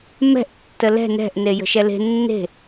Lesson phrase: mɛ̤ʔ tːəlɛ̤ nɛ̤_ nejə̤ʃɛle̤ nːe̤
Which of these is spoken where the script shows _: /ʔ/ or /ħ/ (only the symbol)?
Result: ʔ